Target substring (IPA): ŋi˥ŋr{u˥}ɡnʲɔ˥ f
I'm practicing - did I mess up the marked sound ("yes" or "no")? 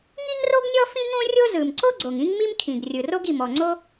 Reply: yes